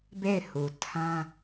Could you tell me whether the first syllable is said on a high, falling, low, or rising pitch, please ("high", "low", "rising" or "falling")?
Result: falling